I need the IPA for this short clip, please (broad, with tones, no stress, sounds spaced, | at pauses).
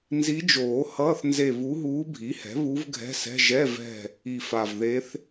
n z i˧˥ d͡ʒ oː˨˩˦ h ʌː˧˥˧ θ n z e˦˨ β u˧˥ ɦ uː˧˥ bʱ i˩˥ h ɛ̤˩˥ β u˧˥ v ɡʱ ɛ̤˧˥˧ s ɛ̤˧˥˧ ʒ ɛ˧˥˧ v ɛ̤˦˨ | i˨˩ f a˨˩ v ð e˧˥ θ